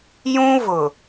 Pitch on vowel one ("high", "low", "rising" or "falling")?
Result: high